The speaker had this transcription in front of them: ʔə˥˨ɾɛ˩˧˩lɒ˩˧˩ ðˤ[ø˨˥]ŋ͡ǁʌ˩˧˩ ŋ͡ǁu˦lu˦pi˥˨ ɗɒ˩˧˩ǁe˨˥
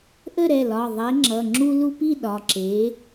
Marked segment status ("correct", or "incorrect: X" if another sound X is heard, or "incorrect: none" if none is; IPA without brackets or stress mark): incorrect: e˨˥